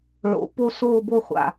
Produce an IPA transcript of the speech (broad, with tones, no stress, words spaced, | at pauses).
ɭo̰˨˥ po˥˧soː˥˧bo˥˧ χʷa̰˨